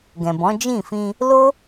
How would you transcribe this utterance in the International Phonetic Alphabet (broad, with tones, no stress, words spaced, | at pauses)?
ɡɛ̃˨bɔ̃˨˦ d͡ʒĩ˦˨fĩ˧ | lo˦